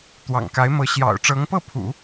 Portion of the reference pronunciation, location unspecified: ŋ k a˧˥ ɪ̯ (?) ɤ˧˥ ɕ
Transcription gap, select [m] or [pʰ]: m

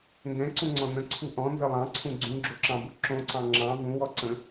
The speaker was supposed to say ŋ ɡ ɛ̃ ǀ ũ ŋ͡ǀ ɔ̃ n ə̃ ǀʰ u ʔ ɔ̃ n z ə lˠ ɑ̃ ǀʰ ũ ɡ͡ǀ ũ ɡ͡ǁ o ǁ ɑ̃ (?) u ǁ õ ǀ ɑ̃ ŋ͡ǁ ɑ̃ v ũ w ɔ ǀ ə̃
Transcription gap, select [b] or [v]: b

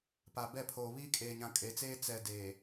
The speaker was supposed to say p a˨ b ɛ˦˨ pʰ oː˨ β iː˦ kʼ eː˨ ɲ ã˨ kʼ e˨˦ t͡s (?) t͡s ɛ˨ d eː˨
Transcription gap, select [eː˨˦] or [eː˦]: eː˦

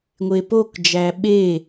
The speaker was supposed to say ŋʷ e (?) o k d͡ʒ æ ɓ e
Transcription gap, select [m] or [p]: p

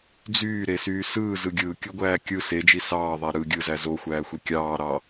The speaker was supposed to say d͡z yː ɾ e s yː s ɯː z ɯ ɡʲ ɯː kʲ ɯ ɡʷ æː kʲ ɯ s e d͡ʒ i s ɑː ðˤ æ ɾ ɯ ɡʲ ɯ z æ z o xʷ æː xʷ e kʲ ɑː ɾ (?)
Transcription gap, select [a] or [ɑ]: ɑ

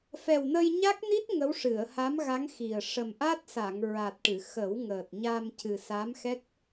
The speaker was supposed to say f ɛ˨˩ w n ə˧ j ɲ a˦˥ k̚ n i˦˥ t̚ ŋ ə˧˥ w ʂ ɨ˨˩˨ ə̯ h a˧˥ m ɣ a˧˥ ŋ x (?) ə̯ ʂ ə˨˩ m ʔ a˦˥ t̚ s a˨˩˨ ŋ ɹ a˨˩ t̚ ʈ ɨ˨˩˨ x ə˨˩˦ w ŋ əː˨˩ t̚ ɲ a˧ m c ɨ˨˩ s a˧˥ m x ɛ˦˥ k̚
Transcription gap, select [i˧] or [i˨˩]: i˨˩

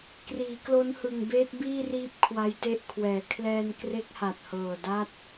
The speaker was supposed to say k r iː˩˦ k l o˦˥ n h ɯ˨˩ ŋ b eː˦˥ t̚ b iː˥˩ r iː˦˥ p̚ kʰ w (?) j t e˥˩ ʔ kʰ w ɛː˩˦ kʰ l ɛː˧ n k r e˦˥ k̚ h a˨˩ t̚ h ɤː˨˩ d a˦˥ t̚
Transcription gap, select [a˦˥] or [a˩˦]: a˦˥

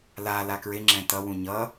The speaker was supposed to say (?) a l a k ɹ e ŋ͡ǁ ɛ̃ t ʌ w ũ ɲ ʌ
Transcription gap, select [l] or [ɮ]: l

